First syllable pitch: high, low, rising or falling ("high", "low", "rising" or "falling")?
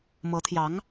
rising